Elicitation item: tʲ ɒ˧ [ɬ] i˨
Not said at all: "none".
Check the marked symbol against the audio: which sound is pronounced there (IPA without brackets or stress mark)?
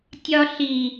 ɬ